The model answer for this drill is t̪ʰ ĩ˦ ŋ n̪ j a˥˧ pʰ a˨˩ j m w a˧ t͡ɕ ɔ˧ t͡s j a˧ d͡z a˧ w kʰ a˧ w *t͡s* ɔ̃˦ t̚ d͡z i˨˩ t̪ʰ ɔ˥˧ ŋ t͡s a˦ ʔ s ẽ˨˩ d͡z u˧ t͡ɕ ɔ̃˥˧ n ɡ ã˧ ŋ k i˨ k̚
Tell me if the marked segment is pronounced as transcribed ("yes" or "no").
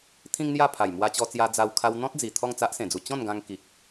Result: no